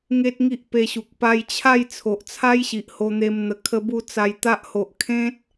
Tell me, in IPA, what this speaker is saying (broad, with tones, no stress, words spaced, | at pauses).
ŋe˦t̚ŋi˦ʔpe˧ɕu˨k̚ pa˧jt͡ɕʰa˥˧j t͡sʰo˨ʔt͡sʰa˦jɕi˨ʔ ho˧n̪e˧mn̪ə˨˩ kʰə˧bu˧ t͡sa˧j t̪a˦ʔ ho˨ʔkʰẽ˦t̚